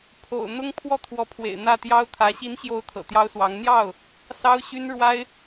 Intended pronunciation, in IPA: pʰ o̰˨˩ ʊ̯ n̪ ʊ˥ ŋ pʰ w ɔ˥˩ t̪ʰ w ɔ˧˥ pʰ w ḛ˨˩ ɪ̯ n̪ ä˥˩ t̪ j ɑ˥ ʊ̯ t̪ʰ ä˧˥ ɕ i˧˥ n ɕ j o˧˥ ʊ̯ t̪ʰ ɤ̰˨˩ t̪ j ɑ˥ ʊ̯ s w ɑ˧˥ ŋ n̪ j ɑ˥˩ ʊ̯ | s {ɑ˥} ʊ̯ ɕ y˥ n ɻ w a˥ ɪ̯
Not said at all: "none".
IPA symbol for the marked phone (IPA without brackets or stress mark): ɑ˥